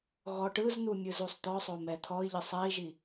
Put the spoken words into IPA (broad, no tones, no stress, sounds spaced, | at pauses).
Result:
ɣ ɔ ʈ ɯ z n̪ u mʲ ɯ z u sˤ t̪ ɔ sˤ o m ɛ t̪ʰ ɔ i̯ ʎ ɯ sˤ ɛ i̯ ʒ i